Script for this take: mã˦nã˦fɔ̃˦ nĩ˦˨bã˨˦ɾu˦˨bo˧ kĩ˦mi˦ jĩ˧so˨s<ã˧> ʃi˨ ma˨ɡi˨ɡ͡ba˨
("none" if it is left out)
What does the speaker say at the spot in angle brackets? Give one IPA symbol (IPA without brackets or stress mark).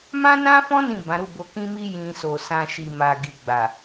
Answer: ã˧